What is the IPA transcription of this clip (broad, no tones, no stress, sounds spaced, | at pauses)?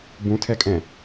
b ũ tʰ ɛ kʼ ɛ̃